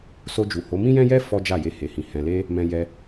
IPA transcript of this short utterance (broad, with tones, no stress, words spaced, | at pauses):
so˧d͡ʒu˨ho˨˦ mĩ˦jɛ̃˦jɛ˦ fɔ˦d͡ʒa˦˨je˧ he˨hĩ˨ hɛ̃˨le˧ | mɛ̃˧jɛ˧